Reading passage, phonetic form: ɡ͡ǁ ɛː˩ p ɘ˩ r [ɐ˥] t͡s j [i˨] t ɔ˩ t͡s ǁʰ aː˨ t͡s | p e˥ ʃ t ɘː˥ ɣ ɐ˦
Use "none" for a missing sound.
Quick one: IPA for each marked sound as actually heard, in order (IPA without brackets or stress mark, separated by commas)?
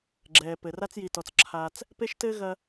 a˥, i˨